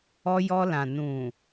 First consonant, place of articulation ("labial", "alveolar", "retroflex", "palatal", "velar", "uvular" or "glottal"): palatal